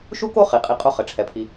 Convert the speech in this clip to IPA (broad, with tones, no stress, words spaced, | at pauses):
ʃu˥ko˥ χi˩qʼi˨ qʼo˦χɘ˩ʈ͡ʂʰɛ˩pʰi˨